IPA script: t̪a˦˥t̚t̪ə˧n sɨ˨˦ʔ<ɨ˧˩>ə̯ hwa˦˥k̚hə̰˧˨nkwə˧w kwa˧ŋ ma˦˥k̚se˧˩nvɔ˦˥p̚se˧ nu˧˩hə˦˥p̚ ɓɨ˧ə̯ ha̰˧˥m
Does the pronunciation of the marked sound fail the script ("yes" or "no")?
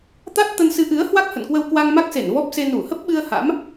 yes